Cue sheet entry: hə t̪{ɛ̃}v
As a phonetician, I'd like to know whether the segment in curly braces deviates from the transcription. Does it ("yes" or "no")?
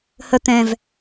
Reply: no